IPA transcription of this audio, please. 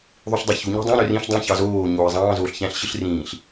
ðˤ u ɬ dˤ ø ç u ɲ i̤ dˤ ɑ̃ ɾ ø r ĩ ɬ dˤ ĩ ç ɑ z oː ɲ oː i̯ zˤ ɑ̃ː z oː ɬ ç æ̃ ɬ ɕ ɯ ɬ r ĩː ɬ

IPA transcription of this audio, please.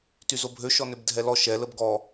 t y z o bʱ ø ʃ ɔ n ø b dʱ ɛ l ɔ ʃ ɛ l ə b ɡ ɔ

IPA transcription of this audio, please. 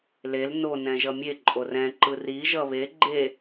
l e l n o n ɛ̃ ʒ ʌ mʲ e ǃʼ o r ɛ̃ ǃ ɯ r i ʒ ʌ β e ɡ͡ǃ e

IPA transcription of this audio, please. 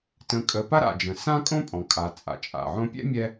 t ə̃˨ kʼ ə˨ p a˥ ɾ a̰˩ d͡ʒ ə̃˩ s ã˦ kʼ õ˦ pʼ ɔ̃˩ kʼ a˩ t͡sʼ a̰˩ t͡ʃʼ a̰˩ ʕ õ˦ pʲ ɛ̰˥ mʲ ɛ˦

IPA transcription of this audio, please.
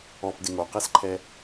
ɔ p d ɪ ŋ o q ɛ s ǃʰ ɛ

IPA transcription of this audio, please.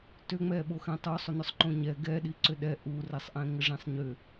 t ʏ ŋ͡m ɛ ɓ o x ɛ̃ tˤ o sˤ ʏ n ʏ sˤ ǃ õ ɲ ɛ ɡ ɛ ɗ i ǀ ʏ ɗ ɛ ʔ u r ɛ sˤ ʔ ɛ̃ ŋ ə ʐ ĩ sˤ ɲ ʏ

